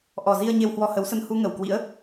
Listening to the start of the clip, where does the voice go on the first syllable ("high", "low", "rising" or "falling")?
low